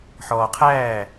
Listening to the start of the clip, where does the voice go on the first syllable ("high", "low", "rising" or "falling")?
low